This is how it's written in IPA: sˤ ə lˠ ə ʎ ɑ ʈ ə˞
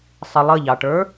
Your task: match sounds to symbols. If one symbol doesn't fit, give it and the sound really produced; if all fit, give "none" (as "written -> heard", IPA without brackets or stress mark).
none